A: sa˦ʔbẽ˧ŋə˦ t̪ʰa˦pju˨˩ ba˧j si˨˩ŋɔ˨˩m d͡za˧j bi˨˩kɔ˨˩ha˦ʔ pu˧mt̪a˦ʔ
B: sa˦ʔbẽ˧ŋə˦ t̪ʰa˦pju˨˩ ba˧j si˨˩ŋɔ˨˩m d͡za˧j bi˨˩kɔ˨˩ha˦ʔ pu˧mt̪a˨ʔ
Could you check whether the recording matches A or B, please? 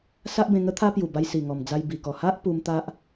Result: A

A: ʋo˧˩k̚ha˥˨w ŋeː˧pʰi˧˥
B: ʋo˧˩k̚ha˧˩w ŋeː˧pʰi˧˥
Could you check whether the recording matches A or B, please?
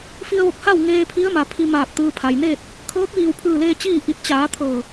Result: A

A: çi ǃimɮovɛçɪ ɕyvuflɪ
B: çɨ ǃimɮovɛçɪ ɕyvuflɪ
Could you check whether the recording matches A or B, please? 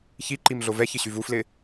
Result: A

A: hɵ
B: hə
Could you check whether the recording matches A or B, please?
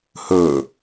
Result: A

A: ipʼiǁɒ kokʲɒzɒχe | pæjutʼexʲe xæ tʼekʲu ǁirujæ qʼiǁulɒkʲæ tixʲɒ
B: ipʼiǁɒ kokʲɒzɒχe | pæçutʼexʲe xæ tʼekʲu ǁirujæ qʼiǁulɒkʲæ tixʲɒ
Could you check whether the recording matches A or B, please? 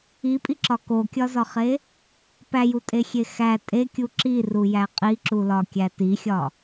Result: A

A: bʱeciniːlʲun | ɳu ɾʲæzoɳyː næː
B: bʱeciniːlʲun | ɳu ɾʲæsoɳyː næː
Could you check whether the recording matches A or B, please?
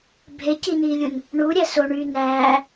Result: B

